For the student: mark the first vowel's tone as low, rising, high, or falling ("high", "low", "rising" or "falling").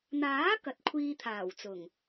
rising